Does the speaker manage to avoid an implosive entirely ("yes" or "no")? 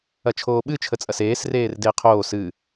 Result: no